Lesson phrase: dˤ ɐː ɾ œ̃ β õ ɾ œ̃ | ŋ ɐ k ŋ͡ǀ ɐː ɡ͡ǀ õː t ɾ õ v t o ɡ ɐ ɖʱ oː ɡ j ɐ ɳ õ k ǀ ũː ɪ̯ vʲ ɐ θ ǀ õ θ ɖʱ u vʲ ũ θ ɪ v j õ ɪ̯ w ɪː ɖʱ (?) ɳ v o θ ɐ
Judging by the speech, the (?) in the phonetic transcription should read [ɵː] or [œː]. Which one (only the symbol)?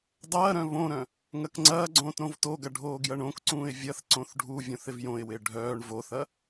œː